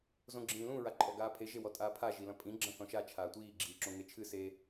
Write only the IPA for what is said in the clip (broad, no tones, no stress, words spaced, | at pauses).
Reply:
zõɡ͡ǁĩːlũ ɹaǃʼɔɡaːpʰe ʒewɔtʼaːpʰa ʒilɐ̃pʼĩ ɡ͡ǁɐ̃θɔ̃ʃa t͡ʃʰaːtʷiː ɡ͡ǁiːǁõŋet͡ʃʰɨ se